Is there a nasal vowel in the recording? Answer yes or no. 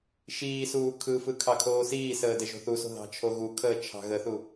no